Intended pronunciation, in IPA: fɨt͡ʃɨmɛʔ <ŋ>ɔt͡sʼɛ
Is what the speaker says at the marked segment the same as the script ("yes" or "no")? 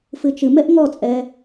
yes